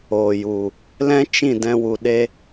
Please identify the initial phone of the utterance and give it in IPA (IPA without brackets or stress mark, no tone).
oː